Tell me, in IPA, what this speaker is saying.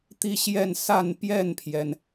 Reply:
t̪ i˥˧ ɕ j ɛ˥˧ n s a˥˧ n p j ɛ˥˩ n pʰ j ɛ˩ n

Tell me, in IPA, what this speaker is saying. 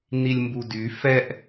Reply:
n i lʲ m b u d y f ɛ ʔ

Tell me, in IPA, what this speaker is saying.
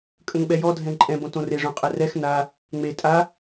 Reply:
kʼ ə̃ ŋ ɓ ɛ j ɔ dʱ ɛ̃ ǃʼ ɛ̃ b õ t õ r e ʐ õ qʼ ɛ r ɛ x n a | ŋ͡m e tʼ a

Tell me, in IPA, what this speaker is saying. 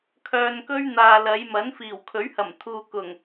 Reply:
kʰ œː˧ n k ɵ˥ ɥ n̪ aː˨ l ɐ˨˧ j m ɐ˨˥ n f iː˨˩ w kʰ ɵ˨˥ ɥ h ɐ˨˩ m t̪ʰ uː˨ k ʊ˨˩ ŋ

